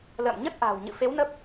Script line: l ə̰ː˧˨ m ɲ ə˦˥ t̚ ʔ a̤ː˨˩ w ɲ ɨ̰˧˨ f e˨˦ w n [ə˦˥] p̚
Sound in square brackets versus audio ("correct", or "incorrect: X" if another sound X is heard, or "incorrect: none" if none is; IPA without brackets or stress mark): correct